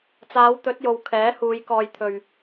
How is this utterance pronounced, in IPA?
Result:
t͡s aː˨˧ w t̪ ɵ˨˥ t̚ j o˨ w kʰ ɛː˨˥ h uː˨˧ j k ɔː˧ j t̪ʰ ɵ˧ ɥ

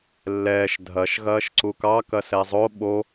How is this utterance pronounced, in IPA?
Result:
lː ɛː ʃ dʱ ɐ ʃ ɣ ɐː ʃ ǀ u k ɑ k ɐ s ɛ zˤ o ɓ o

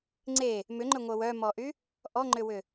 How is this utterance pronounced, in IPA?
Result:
ŋ͡ǀ e | m ʏ ŋ͡ǃ ʏ ŋʷ œ w œ m ɔ ʔ y | ʔ ɔ ŋ͡ǃ ʏ w ʏ

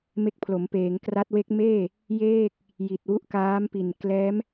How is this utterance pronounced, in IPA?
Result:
m e˦˥ k̚ pʰ l o˩˦ m p eː˩˦ ŋ k r a˦˥ t̚ w e˦˥ k̚ m eː˥˩ | j eː˥˩ k̚ | j i˨˩ t̚ w u˦˥ ʔ k aː˦˥ m p i˨˩ n k l ɛː˦˥ m

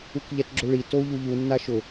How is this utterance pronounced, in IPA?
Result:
u k ʎ ɛ t ɡ͡ǁ ʊ ɭ i t o u̯ ʎ u ʎ u nː a ʃ ʊ

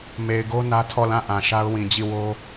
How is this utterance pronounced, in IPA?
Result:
m e˨ ɪ̯ ɡ o˦ n ä˦ tʰ ɔ˦˨ l ã˦˨ ʔ ã˨ ʃ a˦ ʊ̯ w ĩ˨ d͡ʑ i˦˨ w o˦

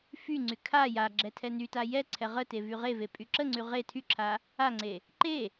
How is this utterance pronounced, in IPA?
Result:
f y ŋ͡ǀ y kʰ a j a ɡ͡ǁ ɛ tʰ ɛ n y t a j ɛ ǀʰ ɛ ʁ ə t e v y ʁ e v e pʼ y ǁ ə ŋ͡ǀ y ʁ e tʰ y ǁʰ a | a ŋ͡ǀ e | ǃ e

